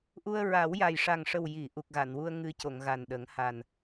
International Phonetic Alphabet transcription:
ʔu˧ə̯ɹa˨˩˦wja˨˩j ʂa˨˩ŋʂə˨˩wji˨˩˨ ʔu˨˩k̚ɣa˨˩˨nwu˧ə̯ ŋɨ˧co˨˩˨ŋ ɣa˨˩n ɗə˨˩˦ŋ ha˨˩n

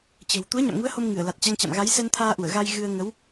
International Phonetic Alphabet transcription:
t͡ɕə̤ː˨˩w t̪u˨˦ə̯ɲa̰˧˨mŋu˨˦ə̯ ho˧m ŋɨ˧˩ə̯la˨˩t̚t͡ɕa˧ŋt͡ɕa̰˧˨m ɣa˨˦jsɛ˧nt̪ʰaː˧ʔu˧˩ə̯ ɣa˧jɣɨ˧ə̯ ŋə˨˦w

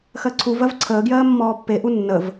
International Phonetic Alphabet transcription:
xɜǀʰuvɜv ǀʰəːɡjɜː mːɔːpːeʔu nːəv

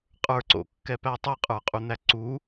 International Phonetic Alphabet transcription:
qʼə˞ǀo̰kːɛpæ tˤɨqʼə˞qʼun̪æ ǀu

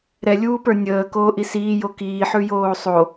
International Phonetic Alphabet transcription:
ɾɛlʲuːpə˞ nʲəːkoːʔi siːjo kiːħʉjoː sˤo

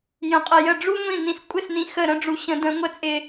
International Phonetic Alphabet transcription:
jə̃˨qʼə˨jə˥˩ ɖ͡ʐu˥ŋʷĩ˥˩ nĩ˨skʷʼɪ˥˩snĩ˨˥ xə˥˩ɾə̃˥ɖ͡ʐu˨˥ ɕə̃˨˩˦də̃˨˩˦ ŋʷə˨˥t͡sʼɪ˨

